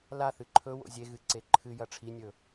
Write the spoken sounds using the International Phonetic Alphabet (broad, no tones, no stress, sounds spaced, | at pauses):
l a θ ɨ ǃʰ ɵ w o̰ zʲ e ɣ ɨ ǀ e ǃʰ ɨ j ɐ ʈ͡ʂʰ i nʲ ɵ